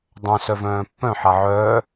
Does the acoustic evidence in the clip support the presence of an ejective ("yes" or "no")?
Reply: no